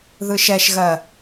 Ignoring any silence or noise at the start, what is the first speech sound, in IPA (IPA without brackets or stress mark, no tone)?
ð